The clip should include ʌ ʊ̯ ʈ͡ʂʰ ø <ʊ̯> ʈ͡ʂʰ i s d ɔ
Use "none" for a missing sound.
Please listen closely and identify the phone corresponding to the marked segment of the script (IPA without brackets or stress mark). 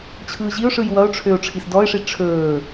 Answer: ʊ̯